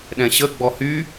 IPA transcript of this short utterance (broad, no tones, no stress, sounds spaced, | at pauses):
ɗ ɛ̃ ɕ ə ɡ͡b ɔ h y